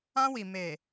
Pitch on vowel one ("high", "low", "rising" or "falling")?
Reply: high